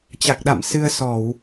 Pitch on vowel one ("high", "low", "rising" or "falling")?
low